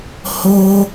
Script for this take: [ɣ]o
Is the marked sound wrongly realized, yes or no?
yes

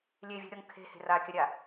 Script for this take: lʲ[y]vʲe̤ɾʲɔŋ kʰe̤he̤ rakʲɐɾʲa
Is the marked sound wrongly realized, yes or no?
yes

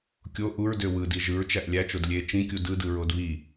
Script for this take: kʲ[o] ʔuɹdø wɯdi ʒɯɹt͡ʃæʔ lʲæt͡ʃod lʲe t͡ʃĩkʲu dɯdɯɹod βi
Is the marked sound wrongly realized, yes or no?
no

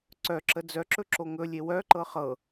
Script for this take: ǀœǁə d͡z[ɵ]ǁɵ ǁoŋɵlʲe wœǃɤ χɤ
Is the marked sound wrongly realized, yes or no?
yes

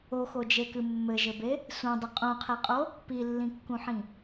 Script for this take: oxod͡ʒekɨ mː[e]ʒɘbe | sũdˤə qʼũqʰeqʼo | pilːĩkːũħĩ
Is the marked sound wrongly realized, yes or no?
yes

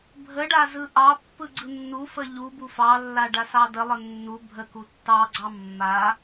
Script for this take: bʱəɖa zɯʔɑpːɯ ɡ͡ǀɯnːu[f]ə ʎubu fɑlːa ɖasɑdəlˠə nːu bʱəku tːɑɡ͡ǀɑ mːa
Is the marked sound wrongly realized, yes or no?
no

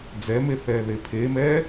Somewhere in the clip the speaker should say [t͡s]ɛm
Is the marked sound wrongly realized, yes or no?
yes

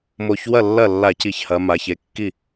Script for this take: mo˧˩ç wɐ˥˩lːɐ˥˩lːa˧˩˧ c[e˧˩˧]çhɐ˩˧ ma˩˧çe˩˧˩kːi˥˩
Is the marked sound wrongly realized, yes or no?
yes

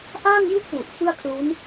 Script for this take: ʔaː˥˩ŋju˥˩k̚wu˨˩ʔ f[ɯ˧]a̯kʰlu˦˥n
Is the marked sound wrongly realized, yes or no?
yes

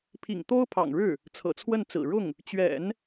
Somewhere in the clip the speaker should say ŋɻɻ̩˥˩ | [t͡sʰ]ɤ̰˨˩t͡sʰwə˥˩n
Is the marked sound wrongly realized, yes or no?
no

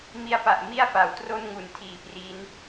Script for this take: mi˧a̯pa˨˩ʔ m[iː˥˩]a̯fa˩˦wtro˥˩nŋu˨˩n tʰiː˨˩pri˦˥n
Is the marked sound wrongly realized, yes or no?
yes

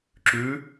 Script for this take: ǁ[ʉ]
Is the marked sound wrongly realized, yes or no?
no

